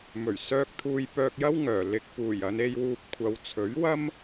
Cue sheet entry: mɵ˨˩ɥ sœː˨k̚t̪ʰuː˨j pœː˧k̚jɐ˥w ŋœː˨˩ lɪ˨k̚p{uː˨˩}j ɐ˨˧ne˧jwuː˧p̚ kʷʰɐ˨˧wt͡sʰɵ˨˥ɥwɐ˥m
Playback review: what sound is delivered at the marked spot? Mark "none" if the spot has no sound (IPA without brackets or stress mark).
uː˨˩